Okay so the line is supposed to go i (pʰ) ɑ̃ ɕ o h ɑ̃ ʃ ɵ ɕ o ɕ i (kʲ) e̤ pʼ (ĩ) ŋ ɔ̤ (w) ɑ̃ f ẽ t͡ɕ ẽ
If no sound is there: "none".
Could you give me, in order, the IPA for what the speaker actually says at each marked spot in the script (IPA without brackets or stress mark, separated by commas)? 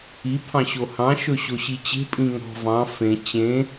pʰ, t͡ɕ, ĩ, v